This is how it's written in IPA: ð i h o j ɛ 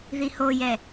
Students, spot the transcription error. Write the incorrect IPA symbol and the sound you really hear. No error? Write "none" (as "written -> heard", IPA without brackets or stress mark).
none